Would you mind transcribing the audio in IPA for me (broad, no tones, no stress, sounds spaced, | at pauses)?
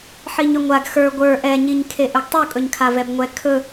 ħ i ɲ ɵ ŋʷ a ɡ x ə˞ ɡʷ ə˞ ʔ ɛ ɲ i ɲ kʰ e ʔ ɵ ɡ tˤ u kʼ ɵ ɲ kʰ a v ɛ b ŋʷ ɛ kʰ ɵ